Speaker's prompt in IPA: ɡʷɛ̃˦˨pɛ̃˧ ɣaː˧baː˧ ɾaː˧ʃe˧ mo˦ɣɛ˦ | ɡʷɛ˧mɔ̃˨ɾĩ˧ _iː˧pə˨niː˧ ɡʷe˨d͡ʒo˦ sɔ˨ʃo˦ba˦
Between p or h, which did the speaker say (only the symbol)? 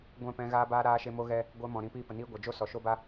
p